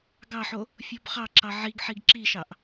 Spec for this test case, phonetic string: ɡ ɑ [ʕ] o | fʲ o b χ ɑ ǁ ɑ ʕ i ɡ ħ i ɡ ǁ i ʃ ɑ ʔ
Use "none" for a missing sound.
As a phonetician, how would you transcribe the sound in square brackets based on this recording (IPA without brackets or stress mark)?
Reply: ħ